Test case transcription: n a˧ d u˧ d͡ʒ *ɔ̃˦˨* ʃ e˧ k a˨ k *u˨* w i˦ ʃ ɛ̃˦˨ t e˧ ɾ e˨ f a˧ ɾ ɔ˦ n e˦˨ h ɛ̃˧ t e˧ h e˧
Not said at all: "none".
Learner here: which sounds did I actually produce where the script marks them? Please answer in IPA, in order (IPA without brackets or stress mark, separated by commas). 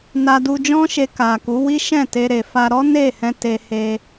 ɔ̃˦, u˨˦